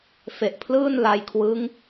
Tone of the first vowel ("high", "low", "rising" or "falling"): low